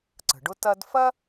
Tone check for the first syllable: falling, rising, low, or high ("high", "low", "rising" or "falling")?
low